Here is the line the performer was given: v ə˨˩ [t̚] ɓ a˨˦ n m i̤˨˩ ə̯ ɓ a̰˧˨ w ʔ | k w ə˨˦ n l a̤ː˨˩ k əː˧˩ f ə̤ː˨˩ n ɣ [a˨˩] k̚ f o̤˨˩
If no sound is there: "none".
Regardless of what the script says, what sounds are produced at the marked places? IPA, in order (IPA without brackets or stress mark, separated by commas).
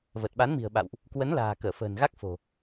t̚, a˦˥